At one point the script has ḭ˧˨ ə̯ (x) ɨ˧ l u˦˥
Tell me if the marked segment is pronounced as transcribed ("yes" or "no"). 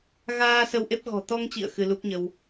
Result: yes